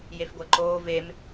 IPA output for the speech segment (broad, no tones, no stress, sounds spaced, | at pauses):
j e f ɡʷ ɛ ǃ oː v e m